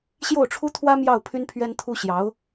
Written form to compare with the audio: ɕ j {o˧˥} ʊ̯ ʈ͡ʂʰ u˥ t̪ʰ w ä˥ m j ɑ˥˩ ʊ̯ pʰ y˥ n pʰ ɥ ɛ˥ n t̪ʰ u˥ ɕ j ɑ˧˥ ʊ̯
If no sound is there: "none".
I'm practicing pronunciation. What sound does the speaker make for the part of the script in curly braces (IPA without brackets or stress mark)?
o˥˩